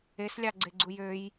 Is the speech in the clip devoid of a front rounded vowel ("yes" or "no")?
no